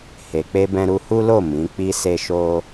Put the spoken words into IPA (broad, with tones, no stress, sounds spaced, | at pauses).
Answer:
h e˨ k͡p e˧ b ɛ̃˧ ɾ u˧ h u˦ l o˦˨ m ĩ˨˦ k͡p i˦ s e˦ ʃ o˦